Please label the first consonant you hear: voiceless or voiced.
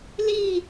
voiced